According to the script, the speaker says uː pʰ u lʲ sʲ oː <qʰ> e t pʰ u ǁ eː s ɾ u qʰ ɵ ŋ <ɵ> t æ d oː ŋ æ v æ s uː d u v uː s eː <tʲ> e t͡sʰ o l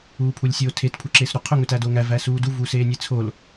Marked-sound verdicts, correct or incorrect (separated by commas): incorrect, correct, incorrect